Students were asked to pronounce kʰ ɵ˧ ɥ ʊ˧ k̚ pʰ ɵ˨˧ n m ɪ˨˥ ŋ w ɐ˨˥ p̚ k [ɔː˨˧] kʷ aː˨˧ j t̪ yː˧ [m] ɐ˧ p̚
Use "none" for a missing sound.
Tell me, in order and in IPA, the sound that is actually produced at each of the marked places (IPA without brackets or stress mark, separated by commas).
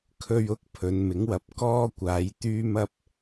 ɔː˥, m